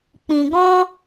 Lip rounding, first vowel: unrounded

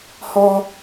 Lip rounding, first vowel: rounded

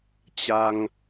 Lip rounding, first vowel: unrounded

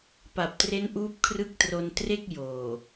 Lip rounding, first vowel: unrounded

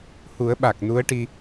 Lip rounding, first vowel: rounded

